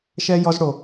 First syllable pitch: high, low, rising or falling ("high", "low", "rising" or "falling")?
high